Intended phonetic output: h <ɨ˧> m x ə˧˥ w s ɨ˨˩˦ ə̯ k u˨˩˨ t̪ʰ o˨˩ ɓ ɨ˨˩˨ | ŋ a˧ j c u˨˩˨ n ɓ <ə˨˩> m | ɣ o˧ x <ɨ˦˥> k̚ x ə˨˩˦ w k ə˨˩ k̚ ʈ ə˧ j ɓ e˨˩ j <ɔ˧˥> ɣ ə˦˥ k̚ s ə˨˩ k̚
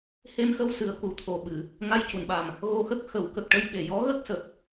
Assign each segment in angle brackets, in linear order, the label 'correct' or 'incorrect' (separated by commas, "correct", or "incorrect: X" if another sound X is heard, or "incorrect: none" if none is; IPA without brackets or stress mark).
incorrect: e˧, incorrect: a˨˩, incorrect: ə˦˥, correct